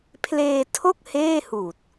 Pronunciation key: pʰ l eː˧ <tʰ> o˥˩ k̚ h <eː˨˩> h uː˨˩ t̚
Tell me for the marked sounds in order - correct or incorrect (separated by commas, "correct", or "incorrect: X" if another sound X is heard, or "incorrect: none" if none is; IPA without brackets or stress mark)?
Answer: correct, incorrect: eː˥˩